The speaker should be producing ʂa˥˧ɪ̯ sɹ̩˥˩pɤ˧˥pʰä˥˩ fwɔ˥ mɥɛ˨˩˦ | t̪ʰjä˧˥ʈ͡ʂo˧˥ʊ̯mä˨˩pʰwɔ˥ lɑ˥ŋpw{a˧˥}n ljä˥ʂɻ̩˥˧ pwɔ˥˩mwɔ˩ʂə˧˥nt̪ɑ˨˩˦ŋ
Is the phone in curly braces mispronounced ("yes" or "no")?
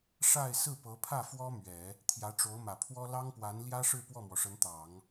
no